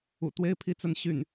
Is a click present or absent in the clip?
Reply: absent